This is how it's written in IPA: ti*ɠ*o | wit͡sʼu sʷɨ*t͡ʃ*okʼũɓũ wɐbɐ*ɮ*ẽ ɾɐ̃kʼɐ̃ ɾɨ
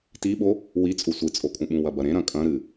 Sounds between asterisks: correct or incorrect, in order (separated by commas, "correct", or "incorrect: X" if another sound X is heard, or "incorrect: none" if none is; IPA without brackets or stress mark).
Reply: incorrect: ɓ, incorrect: t͡sʼ, incorrect: ɾ